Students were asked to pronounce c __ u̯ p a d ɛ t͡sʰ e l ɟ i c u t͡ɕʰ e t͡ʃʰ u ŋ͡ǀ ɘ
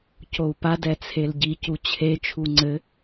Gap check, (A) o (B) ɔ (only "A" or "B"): A